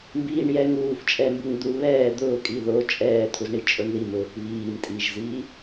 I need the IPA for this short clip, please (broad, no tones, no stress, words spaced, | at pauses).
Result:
mbiːɳjɛ ŋuːf t͡ʃʼɛmbuŋd̪u βɛː d̪ʊː kʼiðo t͡ʃʼɛːt̪ʰuzɳi t͡ʃʼʊɳðimʊːk βiːm tʼiʒziː